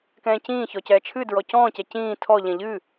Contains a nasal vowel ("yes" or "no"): yes